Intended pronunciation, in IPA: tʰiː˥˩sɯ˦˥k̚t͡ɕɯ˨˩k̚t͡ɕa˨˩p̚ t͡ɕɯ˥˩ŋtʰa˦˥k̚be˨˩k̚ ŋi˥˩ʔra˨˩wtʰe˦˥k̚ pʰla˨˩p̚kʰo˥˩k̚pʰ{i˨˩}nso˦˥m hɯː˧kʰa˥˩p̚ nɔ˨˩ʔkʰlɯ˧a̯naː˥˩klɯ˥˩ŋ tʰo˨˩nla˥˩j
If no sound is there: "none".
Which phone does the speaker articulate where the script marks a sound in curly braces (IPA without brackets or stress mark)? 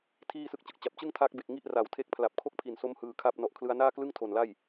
i˨˩